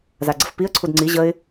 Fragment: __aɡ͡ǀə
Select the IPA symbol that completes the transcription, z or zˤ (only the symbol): z